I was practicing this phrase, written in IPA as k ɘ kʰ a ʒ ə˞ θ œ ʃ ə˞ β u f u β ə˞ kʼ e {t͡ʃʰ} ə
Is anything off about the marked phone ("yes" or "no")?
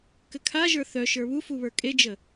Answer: yes